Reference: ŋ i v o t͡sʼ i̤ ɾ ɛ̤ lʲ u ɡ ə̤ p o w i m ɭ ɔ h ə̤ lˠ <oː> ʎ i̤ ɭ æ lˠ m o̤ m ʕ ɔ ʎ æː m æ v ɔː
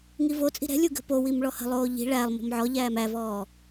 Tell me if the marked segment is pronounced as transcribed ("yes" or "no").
yes